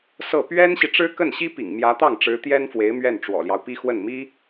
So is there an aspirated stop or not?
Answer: no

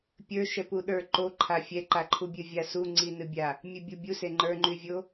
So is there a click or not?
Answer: yes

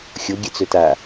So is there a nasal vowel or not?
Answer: no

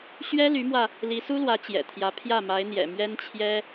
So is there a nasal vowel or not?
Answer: no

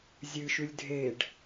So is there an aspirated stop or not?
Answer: no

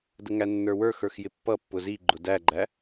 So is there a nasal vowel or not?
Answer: no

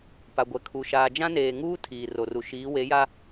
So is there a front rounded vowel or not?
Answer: no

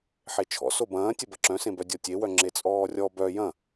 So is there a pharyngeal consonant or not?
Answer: yes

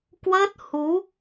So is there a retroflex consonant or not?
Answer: no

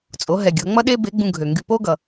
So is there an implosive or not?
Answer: yes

